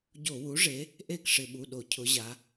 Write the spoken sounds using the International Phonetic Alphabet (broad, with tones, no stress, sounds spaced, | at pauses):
ɟ o˧˩˧ w u˩˥ ʐ e˩˥ | ʔ e˥˩ k ʂ ɪ˧˩˧ ɓ u˩˧˩ ɗ o˧˩˧ cʰ ʊ˩˧ ʑ a˩˧